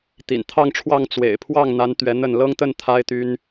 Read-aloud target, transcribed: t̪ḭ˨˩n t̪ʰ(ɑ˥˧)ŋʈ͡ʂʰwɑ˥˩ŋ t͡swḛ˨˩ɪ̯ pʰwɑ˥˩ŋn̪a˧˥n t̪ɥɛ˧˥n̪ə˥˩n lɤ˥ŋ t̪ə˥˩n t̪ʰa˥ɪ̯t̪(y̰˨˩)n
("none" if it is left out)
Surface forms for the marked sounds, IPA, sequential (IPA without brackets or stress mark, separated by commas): ɑ˥˧, y˥